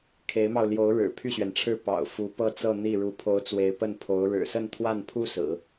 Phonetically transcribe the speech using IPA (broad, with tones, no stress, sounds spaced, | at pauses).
kʰ e˧˥ ɪ̯ m ɑ˧ ʊ̯ l j o˧˥ ʊ̯ ɻ ɻ̩˨˩ pʰ y˥˩ ɕ ɥ ɛ˩ n ʈ͡ʂʰ ɻ̩˥˩ p ɑ̰˨˩ ʊ̯ f u˧˥ p ɤ˥ t͡s ɤ˥˧ n̪ i˥˩ ɻ u˧˥ pʰ o˧˥ ʊ̯ t͡s w e˧˥ ɪ̯ p ə˥˩ n pʰ o˧˥ ʊ̯ ɻ ɻ̩˨˩ s ə˥˧ n t̪ʰ w a˥˩ n pʰ u˥ s ɹ̩˨˩˦